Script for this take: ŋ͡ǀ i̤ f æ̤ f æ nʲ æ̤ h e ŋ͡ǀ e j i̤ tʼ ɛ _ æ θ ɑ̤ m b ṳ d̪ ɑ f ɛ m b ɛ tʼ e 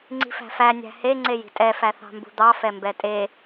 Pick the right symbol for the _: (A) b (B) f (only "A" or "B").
B